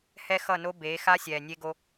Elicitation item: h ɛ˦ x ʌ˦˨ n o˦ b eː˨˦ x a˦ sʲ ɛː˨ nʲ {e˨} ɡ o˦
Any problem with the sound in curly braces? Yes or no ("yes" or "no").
yes